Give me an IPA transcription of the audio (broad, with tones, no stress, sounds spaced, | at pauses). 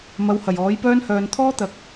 m ɐ˨˧ w h ɐ˨˩ j ɔː˨˥ j p œː˥ n h œː˨ n t̪ʰ ɔː˥ t̪ ɐ˨ k̚